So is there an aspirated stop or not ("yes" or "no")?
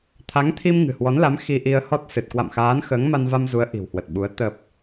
yes